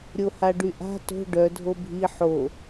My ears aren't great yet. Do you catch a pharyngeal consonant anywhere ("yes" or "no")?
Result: yes